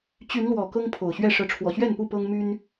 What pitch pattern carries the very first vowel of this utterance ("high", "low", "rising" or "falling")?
rising